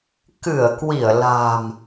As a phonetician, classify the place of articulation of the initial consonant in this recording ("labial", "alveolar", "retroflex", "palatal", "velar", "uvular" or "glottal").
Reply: velar